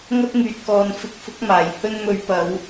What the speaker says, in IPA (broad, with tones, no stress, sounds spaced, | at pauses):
ŋ ɐ˥ t̚ ŋ yː˨ t̚ k ɔː˨ n f ɪ˨˥ k̚ f ʊ˨˥ k̚ m aː˨˩ j h ɵ˧ n m ɵ˨˧ ɥ p ɐ˨˧ w